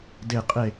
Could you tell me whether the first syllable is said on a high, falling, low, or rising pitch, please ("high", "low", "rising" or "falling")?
falling